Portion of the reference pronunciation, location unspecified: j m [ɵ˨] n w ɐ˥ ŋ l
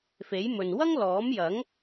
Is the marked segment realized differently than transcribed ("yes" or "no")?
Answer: no